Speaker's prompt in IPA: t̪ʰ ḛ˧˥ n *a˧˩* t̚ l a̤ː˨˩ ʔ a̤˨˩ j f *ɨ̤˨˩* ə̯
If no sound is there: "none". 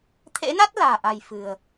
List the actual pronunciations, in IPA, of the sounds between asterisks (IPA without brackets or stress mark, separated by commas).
a˦˥, ɨ̤˨˩